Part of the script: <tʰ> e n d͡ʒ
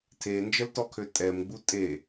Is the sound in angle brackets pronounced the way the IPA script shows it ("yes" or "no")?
yes